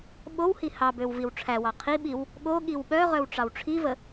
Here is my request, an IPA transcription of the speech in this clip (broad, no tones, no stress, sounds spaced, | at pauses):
ɓ o w h i h ɑ b ø w v i w ʈ͡ʂʰ æ w ɑ qʰ i ɓ i w | ɠ o ɠ i w ɓ œ ʁ œ w ʈ͡ʂ ɑ w ʈ͡ʂʰ i v ə